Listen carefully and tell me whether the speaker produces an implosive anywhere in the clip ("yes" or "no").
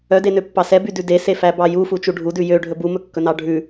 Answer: no